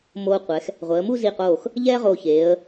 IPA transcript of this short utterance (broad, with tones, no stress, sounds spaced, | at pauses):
m oː˧ qʷ ɛ˩˧ x | ʁʷ ɛ˩˧ ə̯ m u˥˧ z i˧˩ q oː˧˩ x | ʎ ɛː˥ ʁ o˧˩ ç eː˩˧ ə̯